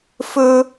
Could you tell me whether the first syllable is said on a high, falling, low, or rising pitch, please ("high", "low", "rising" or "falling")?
high